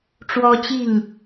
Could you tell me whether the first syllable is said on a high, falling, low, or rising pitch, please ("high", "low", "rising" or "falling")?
high